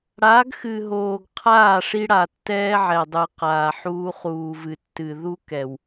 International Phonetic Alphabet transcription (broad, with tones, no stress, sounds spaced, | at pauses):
ɽ a˨˦ ɡ x ɨ˨ ɦ oː˨ ɡ qʰ aː˦˨ ʂ i˦ ɽ a˨ tː ɛː˦ ʕ ɛ˨ dˤ ɨ˨ q aː˨ ħ uː˦ χ uː˨ v ɨ˨ tː ɨ˨ ð u˦ k ɛ˨ w